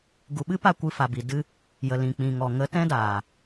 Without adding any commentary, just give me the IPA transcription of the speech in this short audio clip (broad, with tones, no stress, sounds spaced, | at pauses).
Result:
ɡ u˨ ɓ ɨ˦ p a˦˨ kʷ ɨ˧ f a˨ b i˨ d ɨ˧ | j ə˨ l ĩ˨ k͡p ĩ˨ ŋ ɔ˨ ŋ ə˨˦ t ɛ̃˦ d aː˨